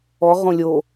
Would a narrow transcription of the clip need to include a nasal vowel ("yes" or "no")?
yes